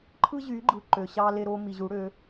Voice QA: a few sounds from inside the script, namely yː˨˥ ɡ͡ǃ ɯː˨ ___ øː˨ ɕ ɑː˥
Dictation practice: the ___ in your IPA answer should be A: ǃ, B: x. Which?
A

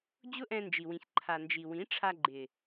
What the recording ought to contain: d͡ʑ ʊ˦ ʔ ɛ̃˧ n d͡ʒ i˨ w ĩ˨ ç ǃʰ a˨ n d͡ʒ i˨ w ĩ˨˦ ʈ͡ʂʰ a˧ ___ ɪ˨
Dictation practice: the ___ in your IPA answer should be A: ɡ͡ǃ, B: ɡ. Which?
A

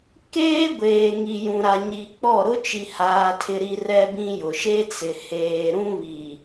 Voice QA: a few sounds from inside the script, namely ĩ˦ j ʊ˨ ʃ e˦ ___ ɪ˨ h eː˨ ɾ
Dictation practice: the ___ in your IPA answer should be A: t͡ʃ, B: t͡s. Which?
B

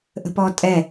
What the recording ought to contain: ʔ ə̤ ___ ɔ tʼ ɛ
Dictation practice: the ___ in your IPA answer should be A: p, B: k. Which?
A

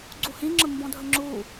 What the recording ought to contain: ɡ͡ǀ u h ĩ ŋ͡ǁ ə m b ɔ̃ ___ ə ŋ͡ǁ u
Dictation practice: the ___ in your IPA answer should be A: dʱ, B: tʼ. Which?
A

